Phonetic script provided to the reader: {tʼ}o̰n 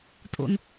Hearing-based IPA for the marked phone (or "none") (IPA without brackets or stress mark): tʼ